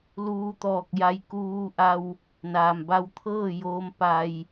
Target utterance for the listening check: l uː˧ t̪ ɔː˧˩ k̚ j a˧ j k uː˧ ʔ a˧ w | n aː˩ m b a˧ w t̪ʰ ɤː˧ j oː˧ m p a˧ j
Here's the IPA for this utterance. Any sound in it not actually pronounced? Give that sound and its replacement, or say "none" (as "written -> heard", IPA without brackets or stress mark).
ɤː˧ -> ɤː˥˨